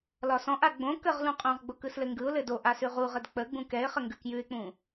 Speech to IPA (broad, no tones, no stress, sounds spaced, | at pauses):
l ɒ s ɔ̃ ʔ a ɡ͡b õ k ə ʁ l ũ qʼ õ ʁ ɡ͡b o k ɯ s l ɘ ŋ ɡ ɯ ʊ̯ l ɘ d o ʔ a s ʉ ʁ u ʁ ə d k͡p ə ɡ͡b ũ k ɛ ɪ̯ χ ə ŋ ɡ ʉ k j ʉ ɪ̯ k͡p ũ